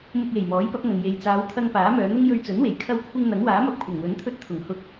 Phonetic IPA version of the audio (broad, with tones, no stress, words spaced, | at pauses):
mʊ˧k̚je˨˩j mɔː˨˥jpɐ˨˥p̚ŋɐ˨ŋ je˨jt͡saː˨˧wt̪ʰɐ˧ŋ paː˨˥mœː˨˧n̪ʊ˥ŋ jɵ˧ɥt͡sɵ˨˥nwe˨˩j kʰɐ˧wkʷʰɪ˧ŋ n̪ɐ˨˥ŋwaː˨˥mɐ˧p̚ kʷʰɐ˨˩ŋwɵ˨˥nt̪ʰɵ˧t̚ t̪ʰʊ˨˩ŋhʊ˧k̚